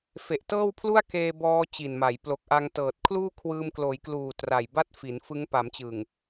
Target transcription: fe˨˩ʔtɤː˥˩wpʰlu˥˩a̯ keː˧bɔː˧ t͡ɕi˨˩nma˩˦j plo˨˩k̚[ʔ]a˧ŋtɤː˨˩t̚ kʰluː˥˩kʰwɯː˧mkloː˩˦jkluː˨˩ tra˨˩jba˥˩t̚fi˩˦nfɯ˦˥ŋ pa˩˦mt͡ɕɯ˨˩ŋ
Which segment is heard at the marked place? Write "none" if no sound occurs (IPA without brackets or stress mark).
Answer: ʔ